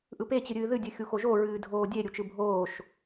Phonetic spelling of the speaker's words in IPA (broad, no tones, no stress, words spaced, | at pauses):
ʔɯpe t͡ɕɨɾʲɨːðɨ dʲɨxʲuxoʒo ɹɨːdʱoːdʲe ɾʲut͡ʃɯbʱoːʃ